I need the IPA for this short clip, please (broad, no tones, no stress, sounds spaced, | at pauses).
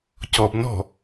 c ɔ b n ɔ̤